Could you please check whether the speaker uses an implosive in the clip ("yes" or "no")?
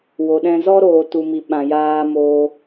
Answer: yes